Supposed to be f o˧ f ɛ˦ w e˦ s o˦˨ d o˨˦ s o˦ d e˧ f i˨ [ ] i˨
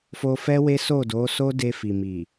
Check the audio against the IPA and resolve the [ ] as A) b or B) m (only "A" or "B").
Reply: B